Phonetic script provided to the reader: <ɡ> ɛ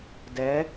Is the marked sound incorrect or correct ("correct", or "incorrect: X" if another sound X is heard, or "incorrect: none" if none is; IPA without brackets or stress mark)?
incorrect: d